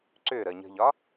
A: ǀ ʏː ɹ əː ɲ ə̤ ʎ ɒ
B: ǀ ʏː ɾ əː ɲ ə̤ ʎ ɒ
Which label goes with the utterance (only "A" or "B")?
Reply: B